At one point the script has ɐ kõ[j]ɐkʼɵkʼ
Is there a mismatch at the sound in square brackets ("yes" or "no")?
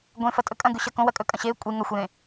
yes